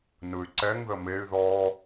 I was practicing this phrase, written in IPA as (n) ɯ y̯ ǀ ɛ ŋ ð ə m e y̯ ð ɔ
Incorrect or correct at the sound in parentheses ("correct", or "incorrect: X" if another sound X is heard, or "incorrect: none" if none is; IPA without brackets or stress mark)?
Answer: correct